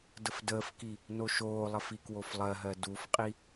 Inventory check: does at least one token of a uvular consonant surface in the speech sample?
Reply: yes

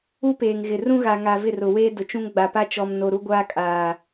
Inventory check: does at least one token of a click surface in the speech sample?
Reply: no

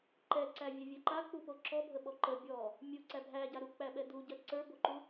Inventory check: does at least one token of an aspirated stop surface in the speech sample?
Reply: no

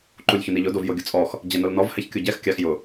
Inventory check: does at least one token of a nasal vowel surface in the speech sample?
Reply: no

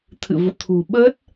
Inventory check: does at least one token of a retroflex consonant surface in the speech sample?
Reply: no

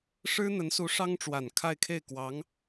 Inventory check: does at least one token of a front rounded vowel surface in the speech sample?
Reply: no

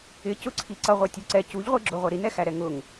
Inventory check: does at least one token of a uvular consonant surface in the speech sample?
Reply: yes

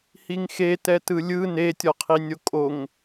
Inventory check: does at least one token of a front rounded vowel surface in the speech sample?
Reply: no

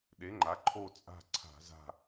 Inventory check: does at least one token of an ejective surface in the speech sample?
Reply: yes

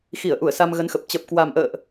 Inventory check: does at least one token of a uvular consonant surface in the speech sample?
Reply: no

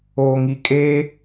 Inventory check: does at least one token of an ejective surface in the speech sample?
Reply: yes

